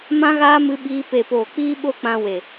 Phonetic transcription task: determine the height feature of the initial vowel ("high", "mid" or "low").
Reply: low